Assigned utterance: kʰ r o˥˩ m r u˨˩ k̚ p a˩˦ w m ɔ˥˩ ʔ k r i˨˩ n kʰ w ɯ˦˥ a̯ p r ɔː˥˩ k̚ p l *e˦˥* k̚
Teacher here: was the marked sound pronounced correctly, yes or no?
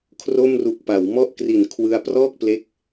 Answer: yes